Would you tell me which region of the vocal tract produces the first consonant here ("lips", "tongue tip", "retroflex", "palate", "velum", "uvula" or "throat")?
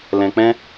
tongue tip